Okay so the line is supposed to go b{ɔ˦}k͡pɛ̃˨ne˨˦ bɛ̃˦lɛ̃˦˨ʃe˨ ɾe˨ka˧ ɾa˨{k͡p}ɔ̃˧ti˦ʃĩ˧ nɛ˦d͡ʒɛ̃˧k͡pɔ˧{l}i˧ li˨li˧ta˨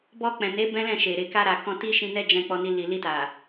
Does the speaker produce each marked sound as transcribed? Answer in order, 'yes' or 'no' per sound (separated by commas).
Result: no, no, no